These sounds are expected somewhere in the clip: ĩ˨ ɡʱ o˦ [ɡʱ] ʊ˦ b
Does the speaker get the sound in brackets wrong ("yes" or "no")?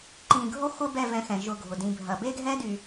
yes